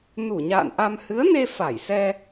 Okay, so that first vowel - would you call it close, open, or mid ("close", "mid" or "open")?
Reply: close